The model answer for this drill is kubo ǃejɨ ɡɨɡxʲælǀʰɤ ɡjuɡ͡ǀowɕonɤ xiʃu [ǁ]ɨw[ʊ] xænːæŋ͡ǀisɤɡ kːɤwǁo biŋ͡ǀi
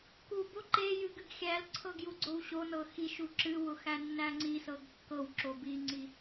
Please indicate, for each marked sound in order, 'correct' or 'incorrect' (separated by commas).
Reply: correct, correct